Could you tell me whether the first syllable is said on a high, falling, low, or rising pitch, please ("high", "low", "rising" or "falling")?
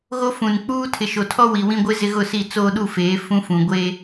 high